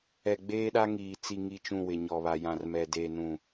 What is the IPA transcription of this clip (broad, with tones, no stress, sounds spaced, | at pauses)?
ɛ˨ ɡ͡b eː˦ ɗ a˦ ŋ iː˨ t͡s i˨ ŋ i˨ t͡ʃ ũ˨ w ɪ˨ ɲ ɔ˨ β a˨ j ã˨ r m ɛ˨ d eː˨ n ũ˨